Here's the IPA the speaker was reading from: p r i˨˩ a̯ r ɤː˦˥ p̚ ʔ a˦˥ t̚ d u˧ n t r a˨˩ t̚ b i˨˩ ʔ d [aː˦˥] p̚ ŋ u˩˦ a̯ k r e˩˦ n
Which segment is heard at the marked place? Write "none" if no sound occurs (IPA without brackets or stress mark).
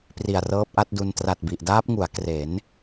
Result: aː˦˥